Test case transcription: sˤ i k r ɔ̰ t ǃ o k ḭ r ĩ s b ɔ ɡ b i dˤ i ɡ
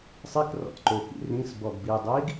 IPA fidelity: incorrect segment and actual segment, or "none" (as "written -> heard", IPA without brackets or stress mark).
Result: none